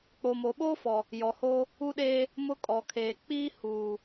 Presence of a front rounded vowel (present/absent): absent